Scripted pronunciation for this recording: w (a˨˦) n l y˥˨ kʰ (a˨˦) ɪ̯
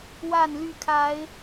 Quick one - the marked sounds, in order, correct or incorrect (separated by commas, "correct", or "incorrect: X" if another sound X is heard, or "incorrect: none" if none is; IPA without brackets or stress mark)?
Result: incorrect: a˥˨, correct